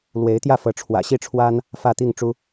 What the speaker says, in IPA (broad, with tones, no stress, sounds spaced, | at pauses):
l w e˧˥ ɪ̯ t̪ j ä˥˩ f ɤ˧˥ ʈ͡ʂʰ w ä̰˨˩ ɕ i˥˩ ʈ͡ʂʰ w a˥ n | f ä˥˧ t̪ i˥˩ ŋ ʈ͡ʂ u˥